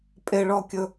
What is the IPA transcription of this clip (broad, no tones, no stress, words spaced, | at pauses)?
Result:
pʼeɭɔkʲɵ